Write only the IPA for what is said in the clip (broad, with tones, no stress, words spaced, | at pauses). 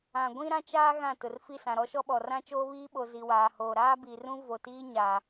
ã˨ ɡʷĩ˦ɾã˦t͡ʃaː˦ ɣã˦˨tʊ˨r fi˦˨sã˨ɾɔ˦ʃɔ˦ ɓɔ˨rã˦ t͡ʃoː˦βiː˦ɓo˨ zi˨waː˨hoː˨ ɾaː˦bi˨rũ˦ vo˨tiː˦ ɲa˨